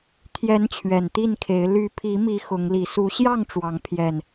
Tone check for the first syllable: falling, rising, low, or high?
rising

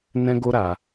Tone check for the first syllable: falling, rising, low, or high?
high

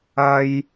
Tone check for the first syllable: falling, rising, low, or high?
high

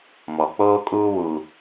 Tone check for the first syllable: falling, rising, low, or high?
low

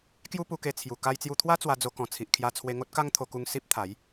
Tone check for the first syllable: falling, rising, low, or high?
high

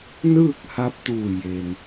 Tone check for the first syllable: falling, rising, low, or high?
falling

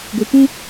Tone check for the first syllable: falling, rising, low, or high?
low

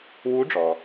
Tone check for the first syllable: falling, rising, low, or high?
rising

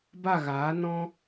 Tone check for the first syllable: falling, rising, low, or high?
falling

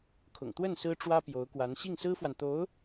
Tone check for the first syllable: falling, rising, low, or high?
low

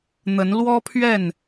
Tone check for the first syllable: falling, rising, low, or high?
rising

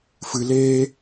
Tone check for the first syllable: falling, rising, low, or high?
low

